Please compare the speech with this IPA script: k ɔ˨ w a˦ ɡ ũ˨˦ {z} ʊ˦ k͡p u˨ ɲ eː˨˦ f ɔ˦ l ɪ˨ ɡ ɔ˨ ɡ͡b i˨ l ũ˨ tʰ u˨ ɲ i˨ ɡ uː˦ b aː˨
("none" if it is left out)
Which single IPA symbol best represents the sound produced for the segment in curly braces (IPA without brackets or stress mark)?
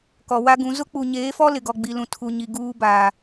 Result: z